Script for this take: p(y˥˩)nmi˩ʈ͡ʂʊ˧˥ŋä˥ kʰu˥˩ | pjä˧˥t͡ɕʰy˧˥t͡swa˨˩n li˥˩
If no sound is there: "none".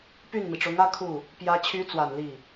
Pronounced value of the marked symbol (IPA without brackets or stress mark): y˥˩